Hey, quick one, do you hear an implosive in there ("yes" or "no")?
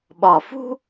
yes